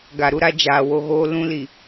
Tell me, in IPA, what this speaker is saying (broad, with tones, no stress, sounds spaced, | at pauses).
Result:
ɡ a˨ ɾ u˦ ɾ a˦ d͡ʒ aː˨ w o˦ ɣ oː˦ l ũ˦ l i˨